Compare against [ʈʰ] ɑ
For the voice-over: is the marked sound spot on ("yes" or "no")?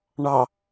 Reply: no